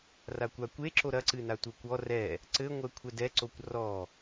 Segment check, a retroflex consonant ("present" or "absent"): absent